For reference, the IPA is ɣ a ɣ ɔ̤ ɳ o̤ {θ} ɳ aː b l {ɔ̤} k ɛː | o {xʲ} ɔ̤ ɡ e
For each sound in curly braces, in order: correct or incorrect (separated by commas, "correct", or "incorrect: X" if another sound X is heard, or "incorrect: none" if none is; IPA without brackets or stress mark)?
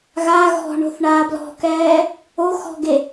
correct, correct, incorrect: x